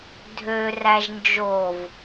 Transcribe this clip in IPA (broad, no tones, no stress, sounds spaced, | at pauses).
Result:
dʱ ø r æ ʒ n d͡ʒ o v